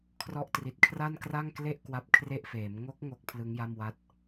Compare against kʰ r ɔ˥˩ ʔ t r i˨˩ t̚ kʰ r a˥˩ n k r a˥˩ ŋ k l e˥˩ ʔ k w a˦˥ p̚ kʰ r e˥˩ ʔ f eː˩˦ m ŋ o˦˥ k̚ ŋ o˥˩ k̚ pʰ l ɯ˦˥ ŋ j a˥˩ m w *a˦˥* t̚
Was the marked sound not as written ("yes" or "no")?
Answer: no